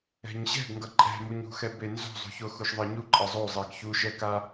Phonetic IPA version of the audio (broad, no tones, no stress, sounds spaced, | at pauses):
ɛ̤ ɲ ɕ ɛ̤ ɡ ŋ ɡ ʌ ǃʼ ɛ̤ m u ɲ ṳ x ɛ b e n z o̤ zˤ ṳ ç o x u ʃ ðˤ ʌ ɲ u ǃʼ ʌ zˤ o zˤ e ɡ ç u ʃ ɛ k a